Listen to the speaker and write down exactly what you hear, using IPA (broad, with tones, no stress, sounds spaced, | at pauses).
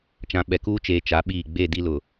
t͡ʃ ã˨ ɓ ɛ˨ k uː˦ t͡ʃ eː˨ t͡ʃ a˨˦ ɓ iː˦˨ ɡ͡b e˦˨ d i˦ l ʊ˨